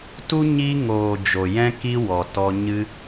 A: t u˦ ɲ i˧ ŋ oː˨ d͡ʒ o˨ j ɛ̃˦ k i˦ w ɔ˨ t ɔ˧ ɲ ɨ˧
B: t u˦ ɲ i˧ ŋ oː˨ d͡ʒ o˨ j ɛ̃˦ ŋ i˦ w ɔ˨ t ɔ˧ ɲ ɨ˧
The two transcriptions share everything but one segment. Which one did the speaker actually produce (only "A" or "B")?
A